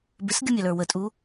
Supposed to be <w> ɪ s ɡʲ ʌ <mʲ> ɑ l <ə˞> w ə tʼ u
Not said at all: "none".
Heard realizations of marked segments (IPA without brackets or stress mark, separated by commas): b, mʲ, ə˞